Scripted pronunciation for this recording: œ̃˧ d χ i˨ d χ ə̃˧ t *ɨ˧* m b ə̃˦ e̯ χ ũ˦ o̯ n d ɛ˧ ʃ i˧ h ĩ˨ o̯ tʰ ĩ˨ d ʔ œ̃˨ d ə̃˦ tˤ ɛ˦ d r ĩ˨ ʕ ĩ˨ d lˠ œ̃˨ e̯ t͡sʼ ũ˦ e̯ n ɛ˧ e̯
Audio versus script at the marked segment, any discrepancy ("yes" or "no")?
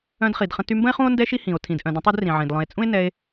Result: yes